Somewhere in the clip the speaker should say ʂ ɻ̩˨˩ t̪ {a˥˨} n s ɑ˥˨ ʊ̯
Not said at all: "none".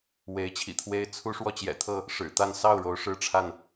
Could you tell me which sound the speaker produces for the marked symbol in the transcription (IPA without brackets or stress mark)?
a˥˨